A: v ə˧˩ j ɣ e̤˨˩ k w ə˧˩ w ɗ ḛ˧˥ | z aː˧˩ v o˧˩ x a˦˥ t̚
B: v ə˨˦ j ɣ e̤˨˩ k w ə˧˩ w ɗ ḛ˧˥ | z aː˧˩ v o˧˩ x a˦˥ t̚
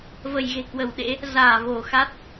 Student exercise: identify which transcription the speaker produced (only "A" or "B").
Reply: A